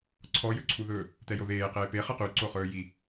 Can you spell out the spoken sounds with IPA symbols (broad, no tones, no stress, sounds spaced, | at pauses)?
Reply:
ǀʰ ɔ j ɵ ǀʰ u ð ɵː | t ɛ j o ð eː q eː p e χ ɛ q y ǀ o χ ɵː j i